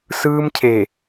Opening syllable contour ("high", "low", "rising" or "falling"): high